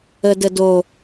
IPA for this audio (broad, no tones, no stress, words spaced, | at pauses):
ədədo